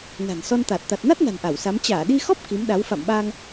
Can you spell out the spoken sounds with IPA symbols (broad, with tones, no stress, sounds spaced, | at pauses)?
n a̤˨˩ n s ɔ˧ n t̪ a˨˩ t̚ t̪ a˨˩ t̚ n a˦˥ t̚ n a̤˨˩ n ʔ a˧˩ w s a˨˦ m t͡ɕ aː˧˩ ɗ i˧ x ɔ˦˥ p̚ k i˨˦ m ɗ a˨˦ w f a̰˧˨ m ɓ aː˧ ŋ